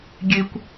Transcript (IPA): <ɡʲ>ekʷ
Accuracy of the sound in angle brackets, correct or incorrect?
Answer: correct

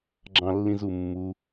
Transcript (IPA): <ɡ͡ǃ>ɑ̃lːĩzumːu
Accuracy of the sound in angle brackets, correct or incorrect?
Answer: incorrect: ɡ͡ǁ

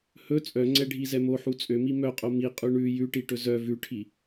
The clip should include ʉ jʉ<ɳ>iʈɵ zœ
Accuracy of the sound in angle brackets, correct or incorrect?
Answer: incorrect: ʈ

